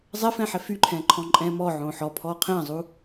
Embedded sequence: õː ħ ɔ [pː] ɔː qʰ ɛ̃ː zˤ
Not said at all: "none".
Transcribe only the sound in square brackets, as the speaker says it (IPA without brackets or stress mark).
pʰ